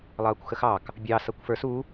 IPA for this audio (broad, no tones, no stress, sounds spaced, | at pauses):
lˠ ʌː kʷ x ə x ɑ k | bʲ ɑ s ʌ kʷ f ə˞ s u